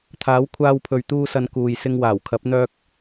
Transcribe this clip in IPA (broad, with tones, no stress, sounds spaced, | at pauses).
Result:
t̪ʰ aː˨˥ w kʷʰ aː˧ w pʰ ɵ˨ ɥ t̪ uː˧ s ɐ˨˧ n k uː˨ j s ɪ˧ ŋ w aː˨˩ w kʰ ɐ˨˥ p̚ n̪ œː˥ k̚